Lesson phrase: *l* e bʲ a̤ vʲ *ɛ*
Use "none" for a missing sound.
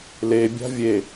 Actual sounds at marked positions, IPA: l, e

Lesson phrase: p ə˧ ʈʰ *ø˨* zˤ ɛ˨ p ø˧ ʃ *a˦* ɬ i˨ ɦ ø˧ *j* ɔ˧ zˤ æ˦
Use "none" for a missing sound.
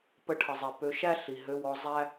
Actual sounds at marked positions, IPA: ə˨, æ˦, w

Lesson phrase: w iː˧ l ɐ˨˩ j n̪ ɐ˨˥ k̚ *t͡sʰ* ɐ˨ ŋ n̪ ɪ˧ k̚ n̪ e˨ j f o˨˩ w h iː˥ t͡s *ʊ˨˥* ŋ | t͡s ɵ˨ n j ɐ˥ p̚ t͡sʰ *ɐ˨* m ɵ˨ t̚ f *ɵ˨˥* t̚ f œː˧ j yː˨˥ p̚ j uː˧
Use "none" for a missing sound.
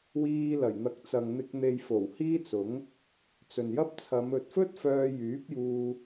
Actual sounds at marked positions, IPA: t͡s, ʊ˨˥, ɐ˨˧, ɵ˥

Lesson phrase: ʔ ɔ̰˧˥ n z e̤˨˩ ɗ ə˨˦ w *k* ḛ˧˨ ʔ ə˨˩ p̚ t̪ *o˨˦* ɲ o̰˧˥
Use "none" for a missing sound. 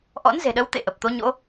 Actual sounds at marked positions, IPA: t̪, o˨˦

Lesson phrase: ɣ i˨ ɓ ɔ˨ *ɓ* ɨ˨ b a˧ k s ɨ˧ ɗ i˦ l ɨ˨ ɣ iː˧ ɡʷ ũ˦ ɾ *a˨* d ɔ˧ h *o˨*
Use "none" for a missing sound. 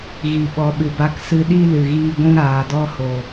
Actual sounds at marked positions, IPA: ɓ, aː˨, o˨

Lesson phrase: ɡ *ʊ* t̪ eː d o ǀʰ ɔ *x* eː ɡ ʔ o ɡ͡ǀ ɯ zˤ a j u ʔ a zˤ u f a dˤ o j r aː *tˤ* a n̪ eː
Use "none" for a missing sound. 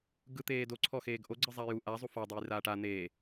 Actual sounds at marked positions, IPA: ɯ, x, ʈ

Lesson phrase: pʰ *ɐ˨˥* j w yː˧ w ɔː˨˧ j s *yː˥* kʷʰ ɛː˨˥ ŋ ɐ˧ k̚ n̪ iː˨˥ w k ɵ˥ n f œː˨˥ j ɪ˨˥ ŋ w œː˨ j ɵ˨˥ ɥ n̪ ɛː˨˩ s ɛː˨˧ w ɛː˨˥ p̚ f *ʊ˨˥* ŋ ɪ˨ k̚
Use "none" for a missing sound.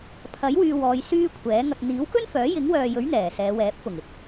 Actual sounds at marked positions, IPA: ɐ˨˥, yː˥, ʊ˨˩

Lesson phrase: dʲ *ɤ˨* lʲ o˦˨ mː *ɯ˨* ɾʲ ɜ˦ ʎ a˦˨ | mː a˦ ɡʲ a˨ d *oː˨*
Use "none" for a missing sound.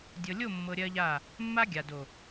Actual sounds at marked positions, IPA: ɤ˨, ɤ˨, o˨

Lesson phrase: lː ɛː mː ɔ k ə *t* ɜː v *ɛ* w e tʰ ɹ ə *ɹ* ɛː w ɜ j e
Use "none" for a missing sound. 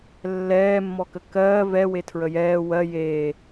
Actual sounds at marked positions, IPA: k, ɛ, j

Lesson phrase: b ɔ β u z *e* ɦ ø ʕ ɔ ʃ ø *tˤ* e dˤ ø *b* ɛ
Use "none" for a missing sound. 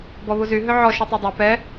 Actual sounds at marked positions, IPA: y, tˤ, p

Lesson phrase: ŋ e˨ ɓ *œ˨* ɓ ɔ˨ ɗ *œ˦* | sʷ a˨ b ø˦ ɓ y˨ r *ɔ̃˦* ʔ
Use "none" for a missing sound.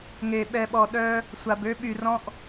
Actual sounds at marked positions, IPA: ɛ˨, œ˦, ɔ̃˦

